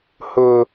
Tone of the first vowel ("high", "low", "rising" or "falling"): low